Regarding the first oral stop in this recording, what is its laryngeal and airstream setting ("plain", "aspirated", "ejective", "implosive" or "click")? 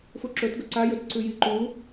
click